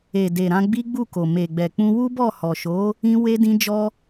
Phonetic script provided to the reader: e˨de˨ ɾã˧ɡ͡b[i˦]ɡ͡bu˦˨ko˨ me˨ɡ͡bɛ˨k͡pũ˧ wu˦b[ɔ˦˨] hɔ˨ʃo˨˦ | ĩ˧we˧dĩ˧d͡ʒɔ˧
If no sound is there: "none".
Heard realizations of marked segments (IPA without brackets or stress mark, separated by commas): i˦, ɔ˦˨